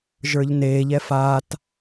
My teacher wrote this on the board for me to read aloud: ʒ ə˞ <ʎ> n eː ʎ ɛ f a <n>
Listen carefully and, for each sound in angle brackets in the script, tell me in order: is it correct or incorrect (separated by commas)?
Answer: correct, incorrect